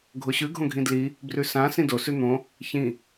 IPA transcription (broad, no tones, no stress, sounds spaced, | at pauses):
ɡʱ o ɕ ʉ ɡʱ õ ɡʱ ĩ d l i | b r ʉ s ã s ĩ d o s ʉ n̪ õ | ç ĩ